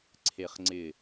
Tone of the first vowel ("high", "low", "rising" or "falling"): low